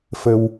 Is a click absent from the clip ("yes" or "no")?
yes